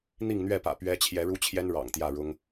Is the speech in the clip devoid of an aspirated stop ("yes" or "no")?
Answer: no